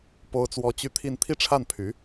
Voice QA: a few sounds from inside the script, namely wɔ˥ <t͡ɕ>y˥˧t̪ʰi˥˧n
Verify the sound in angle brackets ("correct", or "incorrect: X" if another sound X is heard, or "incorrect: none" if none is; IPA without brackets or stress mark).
correct